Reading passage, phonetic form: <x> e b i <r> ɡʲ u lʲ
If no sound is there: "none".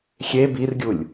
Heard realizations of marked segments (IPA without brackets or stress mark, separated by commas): xʲ, r